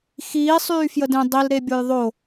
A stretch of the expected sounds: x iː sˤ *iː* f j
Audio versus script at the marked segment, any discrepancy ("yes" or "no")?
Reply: yes